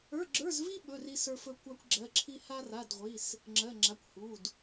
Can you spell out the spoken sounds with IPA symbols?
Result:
ə˞˧˥˧ɡ͡ǁə˞˧˥˧zvi˥ ɓɵ˧˥˧r i˥sə˞˥fɵ˥ kʷa˥kʷɡ͡ǁɜ˧˥˧ǁʰi˥ ha˥ra˧˥˧dʁʷi˧˥˧s | ŋ͡ǁɜ˧˥˧ŋ͡ǁa˧˥˧kʷ hu˧˥˧d

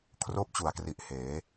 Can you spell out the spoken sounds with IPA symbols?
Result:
kʰroː˥˩p̚t͡ɕu˨˩a̯kri˨˩ʔ heː˩˦

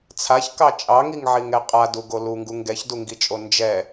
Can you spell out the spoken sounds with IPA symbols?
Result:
t͡sʰaçkɑ t͡ʃʼɑŋiŋʕiŋɛ qʼaduɡo luŋɡu ŋɡɛçduŋɡit͡ʃʼo nd͡ʒɛ

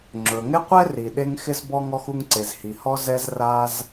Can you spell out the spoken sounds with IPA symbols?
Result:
ŋ͡ǁɵ˩ŋɪ˥qʷɛ˥ ri˩ɗe˥ŋ xɪ˥zbɔ˥ ŋɔ˥xu˥ŋǀe˩zhi˩ hɔ˥ zɛ˥z ra˥z

